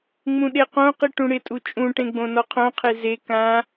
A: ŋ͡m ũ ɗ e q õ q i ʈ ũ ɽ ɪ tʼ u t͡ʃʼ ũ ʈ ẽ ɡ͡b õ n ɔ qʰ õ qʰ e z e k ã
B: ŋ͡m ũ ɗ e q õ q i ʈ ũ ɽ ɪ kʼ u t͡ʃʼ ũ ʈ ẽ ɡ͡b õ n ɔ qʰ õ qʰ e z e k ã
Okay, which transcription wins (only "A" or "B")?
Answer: A